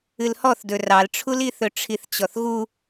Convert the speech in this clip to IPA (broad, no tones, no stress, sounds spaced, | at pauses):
ɨ l h ɔ θ d ɵ r ɑ l ʈ͡ʂʰ u l i θ ɵ ʈ͡ʂʰ i θ t͡ɕ ɔ θ ɣ u